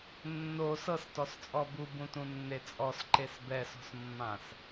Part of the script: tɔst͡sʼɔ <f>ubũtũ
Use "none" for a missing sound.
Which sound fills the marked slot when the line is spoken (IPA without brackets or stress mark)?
b